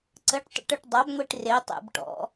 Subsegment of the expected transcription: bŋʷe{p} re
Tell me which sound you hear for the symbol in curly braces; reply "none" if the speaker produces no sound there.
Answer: ʈ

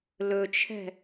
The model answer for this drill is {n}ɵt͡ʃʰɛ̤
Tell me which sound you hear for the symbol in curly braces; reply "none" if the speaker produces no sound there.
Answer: l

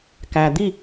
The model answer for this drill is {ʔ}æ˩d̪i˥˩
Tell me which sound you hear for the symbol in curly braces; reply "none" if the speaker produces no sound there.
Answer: k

